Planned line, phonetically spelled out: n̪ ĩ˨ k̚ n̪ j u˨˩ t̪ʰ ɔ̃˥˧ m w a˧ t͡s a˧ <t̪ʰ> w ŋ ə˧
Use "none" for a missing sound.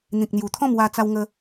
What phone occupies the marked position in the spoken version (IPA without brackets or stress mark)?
none